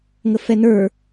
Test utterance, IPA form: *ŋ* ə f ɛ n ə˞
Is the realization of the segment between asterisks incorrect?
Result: no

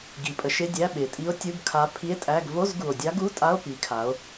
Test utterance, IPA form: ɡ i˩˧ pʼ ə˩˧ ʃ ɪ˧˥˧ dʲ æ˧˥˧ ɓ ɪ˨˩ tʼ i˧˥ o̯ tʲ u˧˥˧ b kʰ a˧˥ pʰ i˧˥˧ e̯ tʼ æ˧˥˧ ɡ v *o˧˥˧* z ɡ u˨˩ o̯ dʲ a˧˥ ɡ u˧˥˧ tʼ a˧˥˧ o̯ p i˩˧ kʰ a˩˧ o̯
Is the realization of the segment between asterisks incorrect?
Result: no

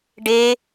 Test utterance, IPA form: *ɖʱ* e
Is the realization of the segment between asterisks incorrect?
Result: yes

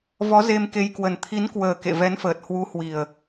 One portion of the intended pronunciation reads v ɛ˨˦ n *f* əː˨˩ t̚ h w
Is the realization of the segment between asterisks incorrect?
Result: no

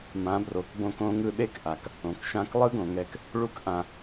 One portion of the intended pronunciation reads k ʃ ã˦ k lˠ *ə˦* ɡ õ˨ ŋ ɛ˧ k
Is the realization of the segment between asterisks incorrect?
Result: yes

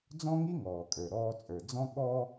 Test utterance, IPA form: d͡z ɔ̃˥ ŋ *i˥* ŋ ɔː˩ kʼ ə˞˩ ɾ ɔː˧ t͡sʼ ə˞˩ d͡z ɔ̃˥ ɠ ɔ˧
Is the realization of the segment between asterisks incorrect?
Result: no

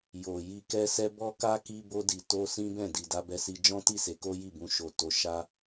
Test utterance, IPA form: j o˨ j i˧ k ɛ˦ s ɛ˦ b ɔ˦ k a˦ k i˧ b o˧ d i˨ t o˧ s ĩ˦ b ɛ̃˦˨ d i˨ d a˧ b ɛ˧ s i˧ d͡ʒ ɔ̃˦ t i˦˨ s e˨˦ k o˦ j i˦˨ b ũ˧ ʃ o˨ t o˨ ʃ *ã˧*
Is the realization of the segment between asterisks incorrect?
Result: yes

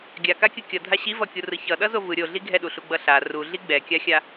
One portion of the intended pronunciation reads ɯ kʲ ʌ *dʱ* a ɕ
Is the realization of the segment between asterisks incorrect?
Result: no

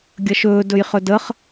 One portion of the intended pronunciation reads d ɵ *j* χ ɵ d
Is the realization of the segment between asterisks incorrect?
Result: no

